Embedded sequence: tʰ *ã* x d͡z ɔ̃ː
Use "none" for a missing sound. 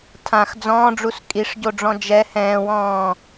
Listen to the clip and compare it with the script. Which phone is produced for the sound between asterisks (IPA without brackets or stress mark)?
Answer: ã